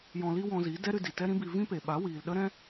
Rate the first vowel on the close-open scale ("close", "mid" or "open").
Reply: mid